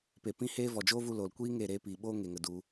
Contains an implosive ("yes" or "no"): yes